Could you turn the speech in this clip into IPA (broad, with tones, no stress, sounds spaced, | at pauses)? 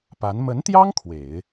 p a˧˥ n m ə˧˥ n t̪ j ɑ˥ ŋ kʰ w e˨˩˦ ɪ̯